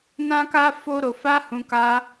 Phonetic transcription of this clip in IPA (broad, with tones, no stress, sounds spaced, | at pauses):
n ã˦ k a˦ f o˦ ɾ o˧ f a˦ h ũ˧ k a˧